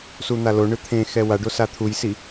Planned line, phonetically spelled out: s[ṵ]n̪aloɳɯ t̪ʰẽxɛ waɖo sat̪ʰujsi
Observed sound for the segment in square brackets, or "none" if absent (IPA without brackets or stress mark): u